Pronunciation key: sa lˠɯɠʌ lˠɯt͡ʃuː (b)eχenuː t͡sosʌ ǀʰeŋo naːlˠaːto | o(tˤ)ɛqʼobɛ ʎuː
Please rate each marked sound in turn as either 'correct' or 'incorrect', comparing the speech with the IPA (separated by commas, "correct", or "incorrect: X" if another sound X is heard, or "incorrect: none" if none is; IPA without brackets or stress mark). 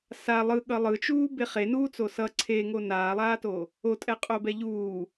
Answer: correct, incorrect: tʼ